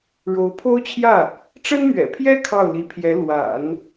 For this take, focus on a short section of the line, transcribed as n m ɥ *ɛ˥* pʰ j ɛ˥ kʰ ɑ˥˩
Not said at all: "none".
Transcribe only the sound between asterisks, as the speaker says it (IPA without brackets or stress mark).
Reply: ɛ̰˨˩